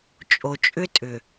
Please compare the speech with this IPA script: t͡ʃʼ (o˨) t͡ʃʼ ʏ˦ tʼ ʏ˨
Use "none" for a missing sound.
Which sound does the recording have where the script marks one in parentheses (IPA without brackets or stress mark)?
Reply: o˨